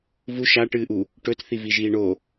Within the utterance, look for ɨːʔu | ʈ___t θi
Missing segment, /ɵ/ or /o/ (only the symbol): ɵ